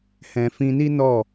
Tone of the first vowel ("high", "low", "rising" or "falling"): low